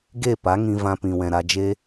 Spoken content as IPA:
ɡe˦˨ pa˨˦ŋĩ˧ vã˧pĩ˨wɛ̃˨ ɾa˧d͡ʒe˦

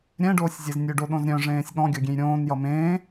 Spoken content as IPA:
ɾʲɛ̃ɖoːsʲzʲez nʲøɖoɗõzɾʲœ̃ ʐẽːsʲɠɔ̃ ɡʲɔɡʲẽjɾʲõːn jʌmẽː

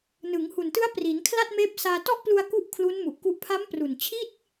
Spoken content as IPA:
nɯ˩˦ŋhu˨˩ntɯ˦˥a̯ pri˩˦n kʰla˥˩t̚meː˦˥p̚saː˧ tɔ˥˩ʔplu˧a̯ ku˥˩ʔkʰlu˦˥nmu˨˩ʔku˦˥ʔ pʰa˦˥mpru˨˩nt͡ɕʰi˥˩t̚

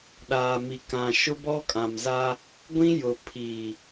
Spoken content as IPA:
ɗaː˨mi˨ kã˨ ʃʊ˦bɔ˦kʼã˨mza˦ | ɡʷĩ˦jʊ˨ pʰi˨

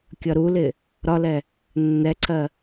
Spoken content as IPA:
kʲʌɾulɪ | ɾɒlɛ | nːɛǀʰɜ

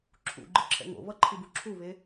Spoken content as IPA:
ǁʰṵɡ͡ǃɯǁʰɛ̰ ŋo̰βʌǃʰibu ǁʰuβe

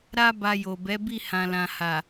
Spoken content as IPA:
ɾa˧ ba˧jo˨bɛ˨˦bi˦˨ hã˨lã˨ha˨

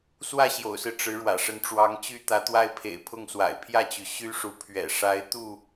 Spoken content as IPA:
swä˥˨ɕjo̰˨˩ʊ̯sɹ̩˦ ʈ͡ʂɻ̩˨˦ ɻwä̰˨˩ʂə˨˦n ʈ͡ʂwɑ˨˦ŋt͡ɕy˦ t̪ä˨˦t̪wa˦ɪ̯pʰḛ˨˩ɪ̯ pʰʊ˥˨ŋswa̰˨˩ɪ̯ pʰjä˥˨t͡ɕy˩ ɕy˦ʂu˨˦ pʰɥɛ̰˨˩ ʂa˨˦ɪ̯t̪u˥˨

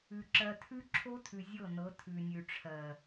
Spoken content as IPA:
ʉ˨ ǁɜ˨tʰʉ˦ǁʰo˦tʰʉ˨ zʲɤ˦˨nɤ˨˦ tʰʉ˨nʲʉ˨ʈ͡ʂʰɜ˨

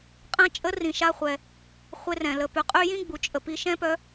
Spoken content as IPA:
qʼɛ̃˧t͡ʃʼə˧˥ rĩ˩ ʃa˧χʷɛ˩ | χʷe˧rɛ̃˩ lə˩˧py˩qʼy˥ jĩ˥ɡ͡bu˩t͡ʃʼə˩ pi˧ʃɛ̃˥pœ˧˥

